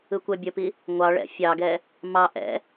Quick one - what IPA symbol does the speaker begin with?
ɯ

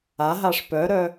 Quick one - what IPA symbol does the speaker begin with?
a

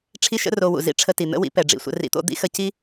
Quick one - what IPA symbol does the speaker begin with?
ʈ͡ʂʰ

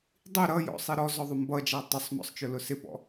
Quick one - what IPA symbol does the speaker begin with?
dˤ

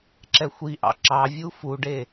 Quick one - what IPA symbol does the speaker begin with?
ǁ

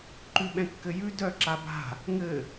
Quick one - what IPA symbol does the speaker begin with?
ǃ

